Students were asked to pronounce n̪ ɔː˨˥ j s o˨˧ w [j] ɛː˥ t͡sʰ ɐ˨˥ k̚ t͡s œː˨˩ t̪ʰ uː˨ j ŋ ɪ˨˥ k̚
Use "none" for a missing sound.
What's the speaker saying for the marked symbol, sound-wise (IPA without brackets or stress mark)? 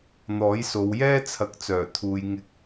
j